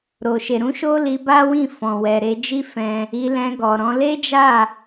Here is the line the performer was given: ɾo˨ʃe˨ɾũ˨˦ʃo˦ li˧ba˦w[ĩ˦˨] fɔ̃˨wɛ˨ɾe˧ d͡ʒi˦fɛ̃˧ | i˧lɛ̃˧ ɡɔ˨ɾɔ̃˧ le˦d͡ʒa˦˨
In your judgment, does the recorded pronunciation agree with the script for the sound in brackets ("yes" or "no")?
yes